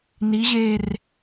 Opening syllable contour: rising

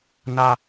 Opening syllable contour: high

